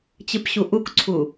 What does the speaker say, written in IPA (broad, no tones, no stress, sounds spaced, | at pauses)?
t͡ɕ ɨ p ɕ u ʔ u k ǀʰ u